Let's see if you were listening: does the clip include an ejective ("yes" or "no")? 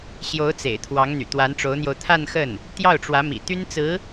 no